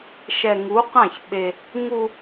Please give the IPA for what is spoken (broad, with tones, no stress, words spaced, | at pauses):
ʃɛ˨ŋu˨˦qã˦˨ç ɓe˦ | ŋu˦